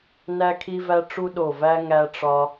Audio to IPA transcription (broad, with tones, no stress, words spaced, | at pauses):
næ˦kʰi˦væ˦ ʈ͡ʂu˦ɗo˨˩væ˦ ŋæ˦ʈ͡ʂɒ˦